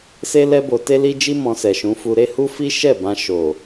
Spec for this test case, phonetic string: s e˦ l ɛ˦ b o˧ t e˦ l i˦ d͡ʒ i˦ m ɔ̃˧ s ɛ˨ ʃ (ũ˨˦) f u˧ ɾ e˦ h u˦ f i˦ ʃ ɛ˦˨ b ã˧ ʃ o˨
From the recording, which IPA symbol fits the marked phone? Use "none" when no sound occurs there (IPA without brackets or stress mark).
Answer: ũ˨˦